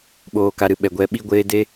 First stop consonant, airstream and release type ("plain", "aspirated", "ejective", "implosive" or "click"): implosive